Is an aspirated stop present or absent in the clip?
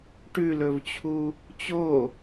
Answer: present